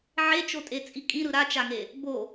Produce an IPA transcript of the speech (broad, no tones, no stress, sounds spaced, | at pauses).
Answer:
ʕ e t͡ʃ o tʼ e t͡sʼ i kʼ ĩ ɾ ɯ ɾ a t͡ʃ a ŋ e | b o